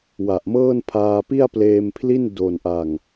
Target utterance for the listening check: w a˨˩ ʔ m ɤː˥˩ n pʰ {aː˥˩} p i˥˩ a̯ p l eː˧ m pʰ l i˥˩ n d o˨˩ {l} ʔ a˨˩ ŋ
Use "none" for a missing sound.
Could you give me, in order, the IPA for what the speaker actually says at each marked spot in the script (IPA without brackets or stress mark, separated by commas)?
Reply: aː˧, n